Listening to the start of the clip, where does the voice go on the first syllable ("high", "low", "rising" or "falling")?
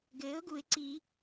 rising